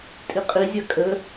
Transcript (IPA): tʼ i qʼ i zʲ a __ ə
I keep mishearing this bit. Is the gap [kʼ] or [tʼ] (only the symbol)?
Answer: kʼ